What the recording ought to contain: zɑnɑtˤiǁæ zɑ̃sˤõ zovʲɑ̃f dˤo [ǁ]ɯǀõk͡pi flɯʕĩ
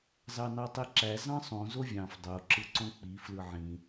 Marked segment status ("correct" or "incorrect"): correct